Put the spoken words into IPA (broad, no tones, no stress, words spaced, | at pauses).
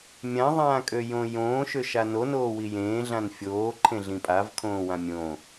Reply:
mʲãðˤãːkʼøjõ jõːʃøʃa nonoːwi jẽːɮãn fʲoːǃʰẽɮĩ pʼavkʰõːwã mʲõ